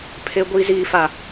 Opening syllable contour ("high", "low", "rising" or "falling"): high